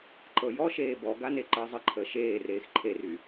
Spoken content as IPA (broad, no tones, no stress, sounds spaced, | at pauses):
ǃ ɤ j ɔ ʃ eː b ɔ ɡ a n e ǃ əː zˤ ə ǃʰ əː ʃ eː r eː x ǃʰ e r y